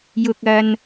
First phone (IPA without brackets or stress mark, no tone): j